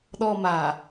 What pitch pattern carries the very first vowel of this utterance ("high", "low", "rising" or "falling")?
high